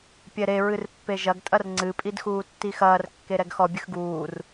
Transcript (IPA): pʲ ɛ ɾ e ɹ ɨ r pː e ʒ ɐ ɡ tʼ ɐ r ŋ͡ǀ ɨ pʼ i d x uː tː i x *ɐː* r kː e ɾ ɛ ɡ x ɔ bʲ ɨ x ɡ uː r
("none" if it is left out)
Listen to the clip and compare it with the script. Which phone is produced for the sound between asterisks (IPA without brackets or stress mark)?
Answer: ɐː